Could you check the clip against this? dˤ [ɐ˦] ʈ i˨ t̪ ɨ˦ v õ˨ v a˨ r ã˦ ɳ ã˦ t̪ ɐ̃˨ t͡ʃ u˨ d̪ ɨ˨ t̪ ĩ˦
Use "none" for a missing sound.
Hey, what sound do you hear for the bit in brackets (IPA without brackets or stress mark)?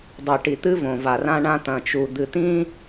ɐ˨